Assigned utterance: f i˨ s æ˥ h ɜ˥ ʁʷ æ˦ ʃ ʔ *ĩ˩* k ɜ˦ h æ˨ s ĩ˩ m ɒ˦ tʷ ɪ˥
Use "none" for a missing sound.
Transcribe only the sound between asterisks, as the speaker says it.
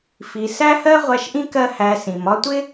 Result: ĩ˥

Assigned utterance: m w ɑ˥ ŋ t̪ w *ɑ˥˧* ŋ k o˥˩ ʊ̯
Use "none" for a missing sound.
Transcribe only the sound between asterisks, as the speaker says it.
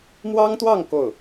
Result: ɑ˥˧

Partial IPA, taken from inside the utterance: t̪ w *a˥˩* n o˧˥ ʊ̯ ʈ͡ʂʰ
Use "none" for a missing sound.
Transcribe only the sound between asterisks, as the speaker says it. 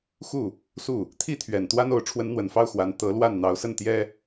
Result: a˥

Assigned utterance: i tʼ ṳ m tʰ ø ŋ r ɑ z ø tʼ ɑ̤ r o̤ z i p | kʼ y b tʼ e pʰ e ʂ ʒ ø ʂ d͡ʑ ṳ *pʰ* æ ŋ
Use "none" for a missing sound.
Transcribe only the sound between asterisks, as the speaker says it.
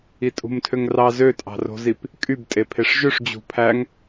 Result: pʰ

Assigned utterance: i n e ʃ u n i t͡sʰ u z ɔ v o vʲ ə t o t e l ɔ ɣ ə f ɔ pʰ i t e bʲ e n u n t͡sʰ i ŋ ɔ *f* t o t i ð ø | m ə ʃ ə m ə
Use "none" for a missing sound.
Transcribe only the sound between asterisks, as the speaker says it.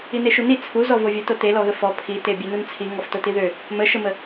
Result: f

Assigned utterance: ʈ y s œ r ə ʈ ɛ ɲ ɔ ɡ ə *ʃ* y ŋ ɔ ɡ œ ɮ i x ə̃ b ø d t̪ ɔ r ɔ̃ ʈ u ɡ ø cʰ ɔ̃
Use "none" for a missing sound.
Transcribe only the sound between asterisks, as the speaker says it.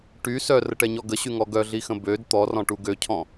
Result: ɕ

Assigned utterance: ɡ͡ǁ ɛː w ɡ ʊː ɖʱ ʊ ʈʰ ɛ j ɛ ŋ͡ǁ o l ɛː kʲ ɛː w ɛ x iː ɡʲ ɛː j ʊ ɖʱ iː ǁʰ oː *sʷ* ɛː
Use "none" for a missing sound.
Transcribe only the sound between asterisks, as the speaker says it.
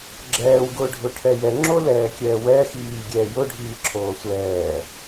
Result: sʷ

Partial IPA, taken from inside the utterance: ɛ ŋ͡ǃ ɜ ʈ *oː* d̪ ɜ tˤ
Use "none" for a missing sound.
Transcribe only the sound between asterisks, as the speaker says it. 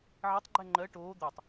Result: oː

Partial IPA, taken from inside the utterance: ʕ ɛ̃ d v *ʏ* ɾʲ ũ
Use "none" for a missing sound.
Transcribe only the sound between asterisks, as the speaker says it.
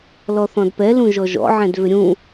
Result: ʏ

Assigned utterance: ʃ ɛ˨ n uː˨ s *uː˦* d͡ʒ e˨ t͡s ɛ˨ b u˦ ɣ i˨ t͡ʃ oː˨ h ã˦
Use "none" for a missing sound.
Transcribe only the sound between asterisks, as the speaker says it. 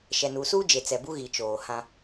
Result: uː˦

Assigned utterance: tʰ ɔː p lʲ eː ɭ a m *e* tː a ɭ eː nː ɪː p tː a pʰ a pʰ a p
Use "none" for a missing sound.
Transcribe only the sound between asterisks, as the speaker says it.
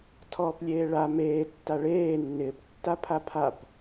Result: eː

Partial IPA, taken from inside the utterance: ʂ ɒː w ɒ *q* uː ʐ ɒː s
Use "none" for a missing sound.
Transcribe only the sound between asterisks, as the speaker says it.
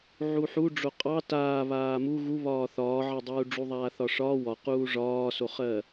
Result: q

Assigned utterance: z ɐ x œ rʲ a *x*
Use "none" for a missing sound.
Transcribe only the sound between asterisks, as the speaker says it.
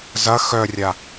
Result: none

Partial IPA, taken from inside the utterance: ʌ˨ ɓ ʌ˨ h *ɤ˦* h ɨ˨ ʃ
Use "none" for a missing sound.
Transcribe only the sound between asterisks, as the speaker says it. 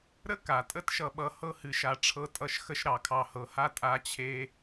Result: ɤ˥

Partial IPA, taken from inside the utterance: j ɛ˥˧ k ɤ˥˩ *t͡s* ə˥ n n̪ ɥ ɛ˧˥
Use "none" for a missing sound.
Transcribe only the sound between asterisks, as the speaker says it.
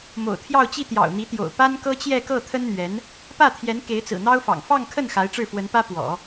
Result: t̪ʰ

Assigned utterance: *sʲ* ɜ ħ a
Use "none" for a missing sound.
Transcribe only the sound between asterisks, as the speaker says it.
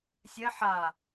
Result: sʲ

